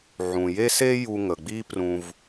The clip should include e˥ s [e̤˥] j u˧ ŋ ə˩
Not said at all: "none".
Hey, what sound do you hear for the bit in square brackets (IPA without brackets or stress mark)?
e˥